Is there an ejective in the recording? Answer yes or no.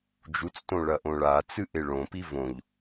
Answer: no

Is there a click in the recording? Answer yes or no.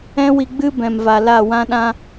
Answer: no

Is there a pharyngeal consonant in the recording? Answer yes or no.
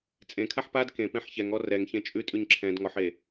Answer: yes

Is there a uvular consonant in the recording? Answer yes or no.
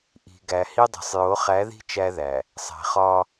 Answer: yes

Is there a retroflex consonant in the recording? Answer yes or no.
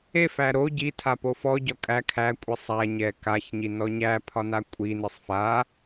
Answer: no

